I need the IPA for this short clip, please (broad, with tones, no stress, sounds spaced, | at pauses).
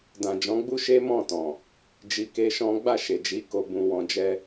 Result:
d ã˨ d͡ʒ ɔ̃˨˦ ɡ͡b u˦ ʃ e˦ m ɔ̃˦˨ t ɔ̃˨ | d͡ʒ i˧ k e˦ ʃ ɔ̃˦ ɡ͡b a˦˨ ʃ e˨ d͡ʒ i˨˦ k o˧ b ũ˧ w ɔ̃˧ d͡ʒ ɛ˦